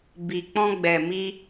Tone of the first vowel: low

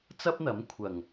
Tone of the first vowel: high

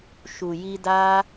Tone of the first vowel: low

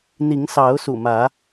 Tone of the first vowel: rising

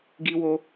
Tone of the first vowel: high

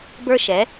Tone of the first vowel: high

